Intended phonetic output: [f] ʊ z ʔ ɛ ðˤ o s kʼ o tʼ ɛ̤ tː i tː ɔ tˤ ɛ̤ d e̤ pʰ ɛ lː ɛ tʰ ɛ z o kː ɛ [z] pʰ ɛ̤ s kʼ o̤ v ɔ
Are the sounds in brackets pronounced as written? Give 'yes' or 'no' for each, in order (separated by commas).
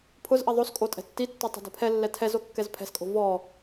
no, yes